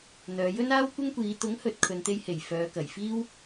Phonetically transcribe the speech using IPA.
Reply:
n̪ œː˨˧ j ɵ˥ n aː˥ w kʷ ɪ˥ ŋ kʷ iː˨˧ t̪ ʊ˨˥ ŋ h ɵ˨ t̚ kʰ ɵ˨ n t̪ e˧ j h e˨˩ j f œː˨˧ k ɐ˨˩ j f iː˥ w

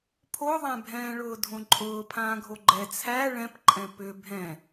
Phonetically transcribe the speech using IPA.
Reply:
pʰ o ðˤ æ̃ bʱ ɛ̃ː ɭ ʊː dʱ õ ǃʼ ʊː pʰ ãː ɡʱ o ɡ͡ǃ ɛ t͡sʰ æ ɭ ɛ̃ p ǃʼ ɛ̃ p ʏ bʱ ɛ̃

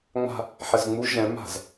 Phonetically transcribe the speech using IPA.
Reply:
ŋ͡m a̤ | ħ ɛ z ŋ͡m u ʒ ɛ̃ m a̤ z

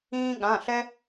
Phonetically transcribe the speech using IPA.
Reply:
ĩː˦ ɠ ã˩˧˩ ɬ ɛ˦

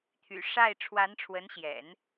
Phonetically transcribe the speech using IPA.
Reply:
t̪ʰ y̰˨˩ ʂ a˥˩ ɪ̯ ʈ͡ʂʰ w a˧˥ n ʈ͡ʂʰ w ə˧˥ n ɕ j ɛ̰˨˩˦ n

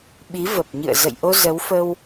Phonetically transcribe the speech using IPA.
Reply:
ɓ i˨˦ v ə˨˩ p̚ ɲ ɨ̰˧˨ ə̯ z ə̰˧˨ j ʔ o˧ z ə˨˦ w f ə˧ w

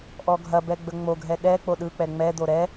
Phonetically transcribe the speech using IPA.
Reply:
ʔ ɔ ɡʱ ɐ b ɛ ɡ͡b ə ŋ͡m o ɡʱ ɛ ɗ ɛ k͡p o ɗ ɯ k͡p ɛ ŋ͡m ɛ d̪ o ɾ ɛ

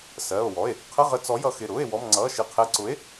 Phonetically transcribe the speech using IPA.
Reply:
s ɜː˩˧˩ o̯ w ɔ˩˧˩ e̯ | qʰ ə˧˥˧ ʁ ə˨˥ t͡s ɔ˨˥ j ʌ˨˥ x ɪ˩˧˩ ɾ ʊː˧˥˧ e̯ w ɔ˧˥˧ m ŋ͡ǀ ʌː˧˥˧ ʃ ɪ˧˥˧ qʰ ɛ˧˥˧ ǀ ʊ˨˥ e̯

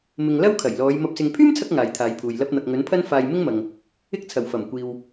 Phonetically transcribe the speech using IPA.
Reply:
m ɪ˨ ŋ l ɐ˥ w kʰ ɐ˨˩ j l ɔː˨˧ j m ɐ˨ p̚ s ɪ˨ ŋ pʰ yː˥ m t͡sʰ ɐ˧ k̚ ŋ aː˨ j t̪ʰ aː˨˧ j pʰ uː˨ j l ɐ˧ p̚ n̪ ɐ˨ k̚ ŋ ɵ˨˥ n pʰ ɐ˥ n f aː˧ j m ɪ˥ ŋ m ɐ˨ ŋ | ɪ˥ k̚ t͡sʰ ɐ˨˩ w f ɐ˨˩ m kʷ iː˨ w

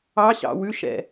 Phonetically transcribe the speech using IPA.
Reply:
ɑ ɕ ɑ̰ w ʉ ʃ ɛ̰

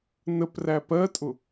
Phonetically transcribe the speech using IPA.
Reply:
n ə p r æ p ɜ tʼ ʊ

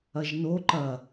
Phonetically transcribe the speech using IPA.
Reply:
ɐ ʒ n o ǃ ɐ

